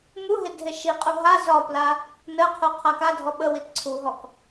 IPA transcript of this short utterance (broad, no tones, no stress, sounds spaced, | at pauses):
m u ɦ e dʱ e ʃ i qʼ u ɦ a z ɒ p l a | n ə qʰ u qʰ a k a dʱ ɔ ɓ ə w i t ǀʰ u ɦ ɔ k